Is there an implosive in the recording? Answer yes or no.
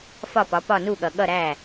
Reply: yes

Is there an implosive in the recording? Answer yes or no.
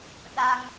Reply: yes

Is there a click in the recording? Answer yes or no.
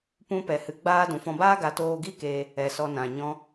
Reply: no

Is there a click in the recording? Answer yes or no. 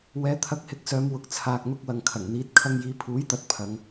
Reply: no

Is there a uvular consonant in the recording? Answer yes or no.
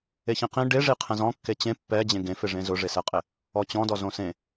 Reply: yes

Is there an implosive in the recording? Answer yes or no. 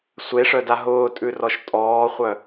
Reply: no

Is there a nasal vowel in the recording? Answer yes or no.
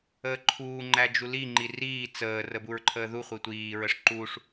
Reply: no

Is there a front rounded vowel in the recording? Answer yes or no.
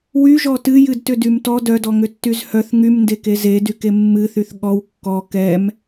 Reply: yes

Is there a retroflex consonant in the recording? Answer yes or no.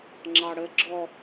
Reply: yes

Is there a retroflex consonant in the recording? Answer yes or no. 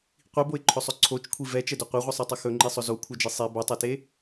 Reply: no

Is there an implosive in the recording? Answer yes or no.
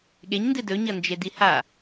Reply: yes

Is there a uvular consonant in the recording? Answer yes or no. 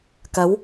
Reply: no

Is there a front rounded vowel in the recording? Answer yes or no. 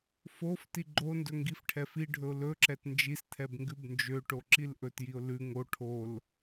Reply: yes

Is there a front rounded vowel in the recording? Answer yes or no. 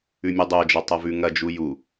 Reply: no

